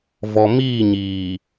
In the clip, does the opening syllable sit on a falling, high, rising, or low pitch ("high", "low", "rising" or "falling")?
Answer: low